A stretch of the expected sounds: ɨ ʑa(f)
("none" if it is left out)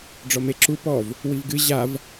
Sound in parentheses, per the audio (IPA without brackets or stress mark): v